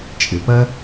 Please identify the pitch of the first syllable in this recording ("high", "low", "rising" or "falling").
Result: low